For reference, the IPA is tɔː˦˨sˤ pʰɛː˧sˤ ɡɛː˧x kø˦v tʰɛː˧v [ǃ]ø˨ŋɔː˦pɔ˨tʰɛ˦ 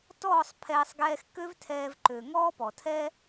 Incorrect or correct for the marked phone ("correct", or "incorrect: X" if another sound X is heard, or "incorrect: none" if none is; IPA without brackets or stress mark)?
correct